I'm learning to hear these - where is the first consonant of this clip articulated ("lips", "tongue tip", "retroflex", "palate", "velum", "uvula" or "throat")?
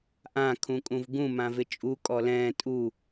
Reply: throat